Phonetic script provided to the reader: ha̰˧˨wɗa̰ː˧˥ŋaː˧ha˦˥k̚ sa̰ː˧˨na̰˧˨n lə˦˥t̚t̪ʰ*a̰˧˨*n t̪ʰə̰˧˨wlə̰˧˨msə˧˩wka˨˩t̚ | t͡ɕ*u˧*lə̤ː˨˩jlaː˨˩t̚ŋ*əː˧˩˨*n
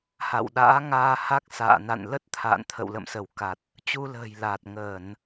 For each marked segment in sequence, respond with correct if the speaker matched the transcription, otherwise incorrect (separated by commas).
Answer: correct, correct, correct